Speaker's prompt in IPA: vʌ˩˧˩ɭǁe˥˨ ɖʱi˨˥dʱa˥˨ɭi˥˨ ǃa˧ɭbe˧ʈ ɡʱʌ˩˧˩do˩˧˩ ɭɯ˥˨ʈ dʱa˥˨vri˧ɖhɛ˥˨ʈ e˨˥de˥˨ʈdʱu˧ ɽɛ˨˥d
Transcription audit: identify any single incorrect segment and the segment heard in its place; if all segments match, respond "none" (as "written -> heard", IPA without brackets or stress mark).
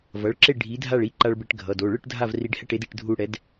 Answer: none